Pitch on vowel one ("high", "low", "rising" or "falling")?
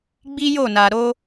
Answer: high